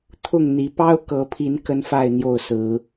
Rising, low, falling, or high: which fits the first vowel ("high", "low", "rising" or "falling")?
falling